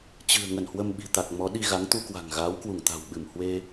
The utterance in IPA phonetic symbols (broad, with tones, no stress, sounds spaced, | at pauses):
t͡ɕ ɨ̤˨˩ ə̯ ŋ ə˧˩ n h w ə˧ m ɓ i̤˨˩ t̪ a˨˩ k̚ m ɔ˨˦ ɗ i˧ ɣ a˨˦ ŋ t̪ u˧ k w a̤˨˩ ŋ ɣ aː˨˦ w k w u˧˩ ŋ t̪ a̤˨˩ w ɓ ɨ˧˩ m h w e˧